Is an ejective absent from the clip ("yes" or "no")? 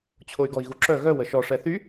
yes